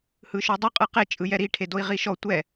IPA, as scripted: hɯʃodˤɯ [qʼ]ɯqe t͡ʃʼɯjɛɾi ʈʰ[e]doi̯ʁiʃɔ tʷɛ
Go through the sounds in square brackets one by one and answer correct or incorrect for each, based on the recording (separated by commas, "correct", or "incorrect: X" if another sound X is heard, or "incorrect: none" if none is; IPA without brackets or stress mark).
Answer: correct, correct